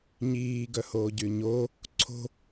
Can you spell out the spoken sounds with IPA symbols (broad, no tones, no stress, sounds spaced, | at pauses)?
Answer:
ɲ iː ɡ œ h oː ɟ y ɲ o | ǀʰ o̤